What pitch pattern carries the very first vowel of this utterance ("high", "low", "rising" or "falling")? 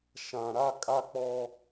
low